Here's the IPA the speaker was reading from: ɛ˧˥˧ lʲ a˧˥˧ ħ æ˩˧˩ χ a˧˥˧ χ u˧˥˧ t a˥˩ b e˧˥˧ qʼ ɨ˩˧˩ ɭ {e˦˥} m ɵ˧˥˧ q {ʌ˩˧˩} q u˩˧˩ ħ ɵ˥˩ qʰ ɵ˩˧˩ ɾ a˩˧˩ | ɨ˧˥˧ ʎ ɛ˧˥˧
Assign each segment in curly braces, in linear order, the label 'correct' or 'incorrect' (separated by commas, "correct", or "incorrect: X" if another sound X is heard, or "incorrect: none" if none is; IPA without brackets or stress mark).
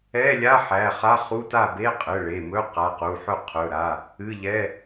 incorrect: e˩˧˩, incorrect: a˩˧˩